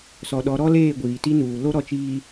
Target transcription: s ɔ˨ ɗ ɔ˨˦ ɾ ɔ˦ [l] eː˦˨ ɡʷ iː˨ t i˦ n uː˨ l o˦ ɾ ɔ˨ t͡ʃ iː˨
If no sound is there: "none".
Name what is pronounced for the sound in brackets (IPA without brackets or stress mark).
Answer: l